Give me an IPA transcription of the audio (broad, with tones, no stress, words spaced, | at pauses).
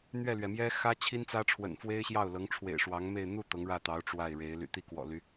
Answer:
n̪ɥɛ˥˩lɥɛ˩mjɛ˥ xä˥ t͡ɕʰi˥nt͡sä˥ʈ͡ʂʰwə̰˨˩n fwe˥ɪ̯ɕjɑ˥˩ʊ̯lɤ˧˥ŋ ʈ͡ʂʰwḛ˨˩ɪ̯ʂwɑ˧˥ŋme˥˧ɪ̯ n̪u˥˩ t̪ɤ˧˥ŋɻä˥˩t̪ɑ˧˥ʊ̯ ʈ͡ʂwa˥˩ɪ̯ɻe˧˥ɪ̯ ly̰˨˩t̪i˥˩kwɔ̰˨˩ly˦